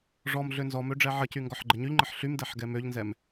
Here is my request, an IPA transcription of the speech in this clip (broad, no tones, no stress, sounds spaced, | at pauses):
ʐ ɔ m ɮ ø n z ɔ m ø ɖ͡ʐ ɛ ʕ ə c y ŋ ɡ ɔ ħ ɡ͡ǃ ə ɲ y ʎ ŋ͡ǃ ə ħ ɬ y m d ɛ ħ ɡ ɛ m ø ʎ n z ɛ m